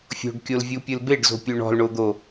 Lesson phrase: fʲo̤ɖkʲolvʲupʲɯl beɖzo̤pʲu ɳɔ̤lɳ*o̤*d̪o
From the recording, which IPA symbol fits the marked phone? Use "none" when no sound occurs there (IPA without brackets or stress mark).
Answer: o